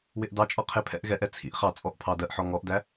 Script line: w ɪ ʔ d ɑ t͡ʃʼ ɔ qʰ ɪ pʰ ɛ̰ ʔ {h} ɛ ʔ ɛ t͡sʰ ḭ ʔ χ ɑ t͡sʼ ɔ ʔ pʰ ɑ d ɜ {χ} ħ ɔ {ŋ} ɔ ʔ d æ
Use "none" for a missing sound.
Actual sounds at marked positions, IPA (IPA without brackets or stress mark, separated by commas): ɣ, ʔ, ŋ